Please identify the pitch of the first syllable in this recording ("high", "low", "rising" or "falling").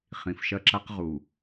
low